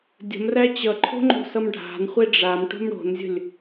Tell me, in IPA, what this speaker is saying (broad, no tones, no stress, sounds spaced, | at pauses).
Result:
dʲ ə̤ m r æ t͡ɕ ʌ ǃʰ o̤ ŋ͡ǃ o̤ s ʌ m ɖʱ a̤ n χʷ e ɖ͡ʐ a m ʈ o̤ m ɽ o̤ n zʲ ə̤ lʲ